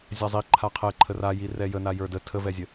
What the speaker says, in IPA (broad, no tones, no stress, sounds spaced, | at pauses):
zʲ a zˤ i ǃʰ a qʰ ɛ ǃʰ ə r a j i r ɛ j ə n a j ə˞ d ə tʰ ə v ɛ zʲ ə